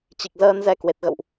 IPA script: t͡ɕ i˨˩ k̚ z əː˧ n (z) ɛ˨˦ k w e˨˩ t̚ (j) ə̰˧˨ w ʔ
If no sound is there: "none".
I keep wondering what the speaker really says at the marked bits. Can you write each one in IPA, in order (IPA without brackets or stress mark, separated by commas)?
z, ɣ